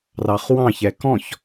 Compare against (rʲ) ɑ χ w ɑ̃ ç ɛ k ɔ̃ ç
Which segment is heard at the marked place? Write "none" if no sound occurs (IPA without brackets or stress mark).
r